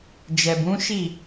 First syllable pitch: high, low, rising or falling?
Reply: low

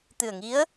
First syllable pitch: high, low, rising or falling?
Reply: low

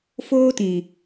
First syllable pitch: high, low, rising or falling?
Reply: high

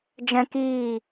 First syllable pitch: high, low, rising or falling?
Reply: high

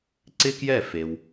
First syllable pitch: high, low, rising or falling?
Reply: high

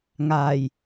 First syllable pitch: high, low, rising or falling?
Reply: low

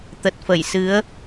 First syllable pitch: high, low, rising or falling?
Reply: low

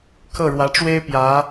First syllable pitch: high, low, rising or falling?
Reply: falling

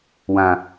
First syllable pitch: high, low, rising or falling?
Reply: low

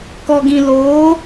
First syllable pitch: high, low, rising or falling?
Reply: low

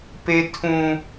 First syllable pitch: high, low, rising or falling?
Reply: high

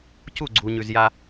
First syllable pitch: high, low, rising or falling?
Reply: falling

